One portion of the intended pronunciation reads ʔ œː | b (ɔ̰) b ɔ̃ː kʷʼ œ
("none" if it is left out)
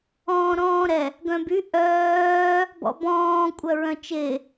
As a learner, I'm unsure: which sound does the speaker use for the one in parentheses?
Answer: ɔ̰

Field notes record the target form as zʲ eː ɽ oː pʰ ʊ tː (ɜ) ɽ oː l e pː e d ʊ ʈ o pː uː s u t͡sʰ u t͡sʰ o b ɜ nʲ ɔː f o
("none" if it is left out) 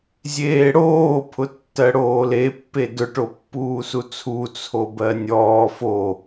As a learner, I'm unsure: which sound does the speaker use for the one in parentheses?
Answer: ɜ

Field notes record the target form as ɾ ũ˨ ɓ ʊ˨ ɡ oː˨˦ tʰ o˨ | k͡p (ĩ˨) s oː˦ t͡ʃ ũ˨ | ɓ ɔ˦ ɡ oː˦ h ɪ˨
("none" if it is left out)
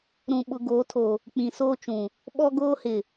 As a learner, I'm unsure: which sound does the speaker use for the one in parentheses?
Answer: ĩ˨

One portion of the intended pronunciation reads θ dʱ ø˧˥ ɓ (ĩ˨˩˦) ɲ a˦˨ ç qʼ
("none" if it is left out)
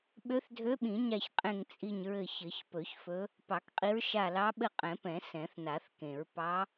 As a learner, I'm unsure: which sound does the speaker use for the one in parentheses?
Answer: ĩ˨˩˦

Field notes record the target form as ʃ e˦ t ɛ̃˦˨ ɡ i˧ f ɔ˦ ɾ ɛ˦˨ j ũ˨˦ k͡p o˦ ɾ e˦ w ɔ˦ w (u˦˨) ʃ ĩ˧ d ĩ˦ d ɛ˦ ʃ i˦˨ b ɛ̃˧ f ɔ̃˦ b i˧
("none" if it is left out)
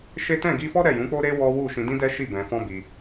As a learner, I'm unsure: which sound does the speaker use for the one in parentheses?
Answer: u˦˨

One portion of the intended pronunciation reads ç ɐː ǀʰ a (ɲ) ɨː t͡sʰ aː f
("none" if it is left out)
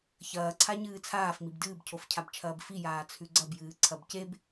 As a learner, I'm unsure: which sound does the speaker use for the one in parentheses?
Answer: ɲ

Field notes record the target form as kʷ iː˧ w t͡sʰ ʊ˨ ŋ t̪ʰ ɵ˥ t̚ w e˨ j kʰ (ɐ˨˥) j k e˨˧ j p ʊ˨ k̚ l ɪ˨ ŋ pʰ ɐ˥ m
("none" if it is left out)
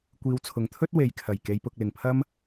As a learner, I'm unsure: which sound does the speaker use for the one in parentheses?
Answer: ɐ˨˩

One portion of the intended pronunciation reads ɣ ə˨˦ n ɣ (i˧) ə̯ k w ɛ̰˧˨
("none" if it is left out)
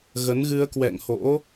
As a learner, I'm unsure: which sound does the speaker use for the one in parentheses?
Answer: ɨ˧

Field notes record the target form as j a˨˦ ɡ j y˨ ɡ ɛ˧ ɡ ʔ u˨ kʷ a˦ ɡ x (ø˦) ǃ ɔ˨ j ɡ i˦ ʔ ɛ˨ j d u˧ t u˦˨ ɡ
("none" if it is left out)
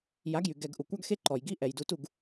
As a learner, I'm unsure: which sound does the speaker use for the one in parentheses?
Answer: e˦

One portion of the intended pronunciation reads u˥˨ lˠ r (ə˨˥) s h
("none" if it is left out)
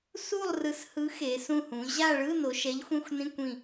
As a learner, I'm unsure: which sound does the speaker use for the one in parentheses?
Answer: ɯ˨˥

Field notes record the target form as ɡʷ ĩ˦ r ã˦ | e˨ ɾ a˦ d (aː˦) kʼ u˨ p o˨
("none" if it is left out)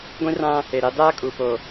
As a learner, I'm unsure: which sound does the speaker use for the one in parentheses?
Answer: aː˦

